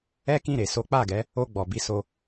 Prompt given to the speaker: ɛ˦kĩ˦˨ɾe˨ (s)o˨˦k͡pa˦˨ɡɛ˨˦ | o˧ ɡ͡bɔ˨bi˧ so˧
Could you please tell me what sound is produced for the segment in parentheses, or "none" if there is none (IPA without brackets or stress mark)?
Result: s